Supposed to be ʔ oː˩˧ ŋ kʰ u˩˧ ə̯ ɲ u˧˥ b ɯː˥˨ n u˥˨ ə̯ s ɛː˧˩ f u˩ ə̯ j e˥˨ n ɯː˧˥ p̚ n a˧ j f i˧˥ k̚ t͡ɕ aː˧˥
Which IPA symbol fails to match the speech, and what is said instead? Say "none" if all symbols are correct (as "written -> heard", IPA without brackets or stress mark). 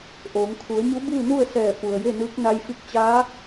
p̚ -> k̚